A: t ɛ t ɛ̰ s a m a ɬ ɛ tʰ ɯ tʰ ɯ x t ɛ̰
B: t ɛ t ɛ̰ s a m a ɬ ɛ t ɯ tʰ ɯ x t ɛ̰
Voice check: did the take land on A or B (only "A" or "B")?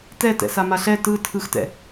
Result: B